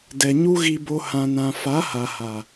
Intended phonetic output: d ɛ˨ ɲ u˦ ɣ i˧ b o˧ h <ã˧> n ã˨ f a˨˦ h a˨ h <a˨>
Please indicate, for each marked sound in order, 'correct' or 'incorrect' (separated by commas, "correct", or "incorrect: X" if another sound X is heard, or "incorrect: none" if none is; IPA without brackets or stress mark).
incorrect: ã˨, correct